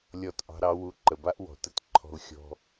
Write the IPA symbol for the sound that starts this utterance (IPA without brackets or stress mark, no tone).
lʲ